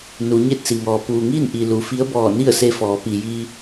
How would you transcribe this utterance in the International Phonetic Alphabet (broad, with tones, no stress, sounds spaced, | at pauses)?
n u˩˧ ɲ e˥˨ t̚ s i˩ ŋ ɔː˩ p uː˩ ŋ iː˥˨ n ʔ i˩ l u˩ f i˧˥ ə̯ b ɔː˧˩ n i˥˨ ə̯ s e˧˥ f ɔː˩˧ p i˩ j i˧